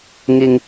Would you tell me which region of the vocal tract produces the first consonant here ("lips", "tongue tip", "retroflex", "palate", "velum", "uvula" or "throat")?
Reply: velum